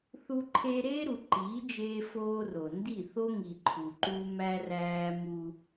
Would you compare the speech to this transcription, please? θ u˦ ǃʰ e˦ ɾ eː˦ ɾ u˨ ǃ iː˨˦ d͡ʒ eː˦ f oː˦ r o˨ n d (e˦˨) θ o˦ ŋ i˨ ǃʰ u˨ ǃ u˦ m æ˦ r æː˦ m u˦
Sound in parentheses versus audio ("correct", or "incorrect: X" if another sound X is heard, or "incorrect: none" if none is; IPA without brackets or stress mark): incorrect: i˦˨